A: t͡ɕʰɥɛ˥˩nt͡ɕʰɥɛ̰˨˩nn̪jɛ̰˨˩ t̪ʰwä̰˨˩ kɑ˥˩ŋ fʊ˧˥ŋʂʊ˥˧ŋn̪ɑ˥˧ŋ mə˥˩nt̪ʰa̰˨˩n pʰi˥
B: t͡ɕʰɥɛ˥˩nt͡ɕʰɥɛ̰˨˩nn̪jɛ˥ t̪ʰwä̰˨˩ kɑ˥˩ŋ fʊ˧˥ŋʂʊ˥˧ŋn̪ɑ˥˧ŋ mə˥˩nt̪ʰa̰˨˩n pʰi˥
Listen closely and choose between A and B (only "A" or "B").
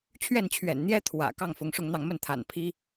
B